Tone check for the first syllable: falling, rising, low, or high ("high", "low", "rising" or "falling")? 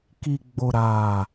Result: low